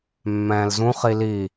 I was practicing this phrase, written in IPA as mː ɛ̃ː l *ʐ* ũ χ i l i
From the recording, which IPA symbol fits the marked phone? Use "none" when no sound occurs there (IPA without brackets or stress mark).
z